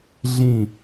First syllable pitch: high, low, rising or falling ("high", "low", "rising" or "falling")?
falling